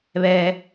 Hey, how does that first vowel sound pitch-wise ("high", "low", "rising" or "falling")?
low